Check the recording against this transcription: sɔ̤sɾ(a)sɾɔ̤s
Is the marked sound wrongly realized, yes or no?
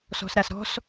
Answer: no